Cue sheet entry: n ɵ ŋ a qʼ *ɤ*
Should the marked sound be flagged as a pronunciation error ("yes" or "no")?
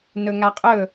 yes